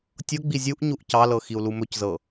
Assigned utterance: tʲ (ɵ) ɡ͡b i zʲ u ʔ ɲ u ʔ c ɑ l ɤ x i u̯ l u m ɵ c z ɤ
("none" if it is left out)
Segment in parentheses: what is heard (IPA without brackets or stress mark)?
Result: ɤ